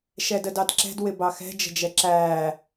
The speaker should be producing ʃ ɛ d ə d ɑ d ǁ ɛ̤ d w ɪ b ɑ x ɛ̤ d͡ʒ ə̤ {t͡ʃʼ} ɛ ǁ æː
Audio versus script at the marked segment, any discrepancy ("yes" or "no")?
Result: yes